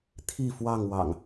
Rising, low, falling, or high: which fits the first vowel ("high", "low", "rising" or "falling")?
falling